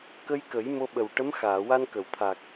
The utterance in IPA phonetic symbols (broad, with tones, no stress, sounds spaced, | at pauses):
k ə˧ j k ə˨˩˦ j m o˧ ɓ ə˨˩ w ʈ ə˧˥ m x aː˨˩˨ w a˧ n k ə˨˩˨ w t̪ʰ aː˨˩ k̚